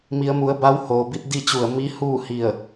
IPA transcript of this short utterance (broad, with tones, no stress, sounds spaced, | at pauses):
m i˩˧ ə̯ m u˩˧ ə̯ b a˧˥ w h oː˩ b i˧ t̚ d i˥˨ t͡ɕ u˧˩ ə̯ m i˧˥ h uː˥˨ h i˧˩ ə̯